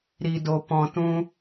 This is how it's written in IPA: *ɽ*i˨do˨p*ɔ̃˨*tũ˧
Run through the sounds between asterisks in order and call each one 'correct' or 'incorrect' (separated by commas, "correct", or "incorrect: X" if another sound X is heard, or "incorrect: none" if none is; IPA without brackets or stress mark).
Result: incorrect: ɾ, correct